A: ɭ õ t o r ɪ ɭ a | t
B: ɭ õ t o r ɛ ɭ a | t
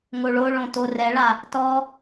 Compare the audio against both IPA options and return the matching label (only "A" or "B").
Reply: B